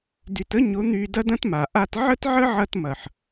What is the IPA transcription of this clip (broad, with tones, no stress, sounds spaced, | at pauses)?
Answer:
d y˨ t ə˦ ɲ ʊ˨˦ n̪ y˧ d ɐ˦ d ɐ̃˦ t m a˨ ʔ a˦ t ʕ ə˦ t ʕ ə˦ ʕ ɐ˧ t m ɐ˨ ħ